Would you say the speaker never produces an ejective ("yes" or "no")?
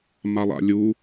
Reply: yes